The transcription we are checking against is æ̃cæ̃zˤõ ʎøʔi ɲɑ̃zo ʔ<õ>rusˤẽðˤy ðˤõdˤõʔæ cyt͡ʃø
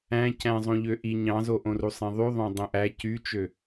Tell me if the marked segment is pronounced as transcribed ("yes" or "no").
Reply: yes